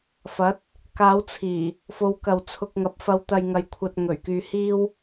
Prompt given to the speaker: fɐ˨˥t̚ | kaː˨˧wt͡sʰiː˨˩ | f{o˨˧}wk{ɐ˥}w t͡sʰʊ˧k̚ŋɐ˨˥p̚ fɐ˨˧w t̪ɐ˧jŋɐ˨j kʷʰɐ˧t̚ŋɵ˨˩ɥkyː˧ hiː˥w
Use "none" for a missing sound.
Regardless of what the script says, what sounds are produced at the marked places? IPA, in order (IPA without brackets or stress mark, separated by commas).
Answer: o˨˧, ɐ˨